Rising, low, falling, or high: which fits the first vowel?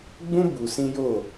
high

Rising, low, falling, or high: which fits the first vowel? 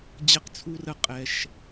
low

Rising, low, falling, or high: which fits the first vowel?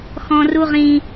low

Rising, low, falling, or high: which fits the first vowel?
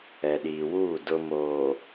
low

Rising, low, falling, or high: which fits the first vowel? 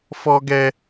high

